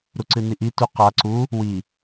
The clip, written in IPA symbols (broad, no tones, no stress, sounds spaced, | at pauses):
ɾ u ǀ ɨ n i ʔ i t u q a ǀ u | w i